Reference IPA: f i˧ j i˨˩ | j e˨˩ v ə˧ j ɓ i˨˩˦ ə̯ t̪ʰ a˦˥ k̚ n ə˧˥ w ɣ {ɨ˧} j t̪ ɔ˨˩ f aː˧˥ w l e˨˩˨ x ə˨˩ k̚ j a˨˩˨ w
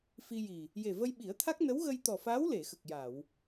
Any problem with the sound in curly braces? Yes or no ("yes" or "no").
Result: yes